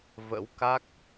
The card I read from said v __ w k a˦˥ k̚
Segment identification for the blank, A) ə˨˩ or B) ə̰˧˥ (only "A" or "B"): B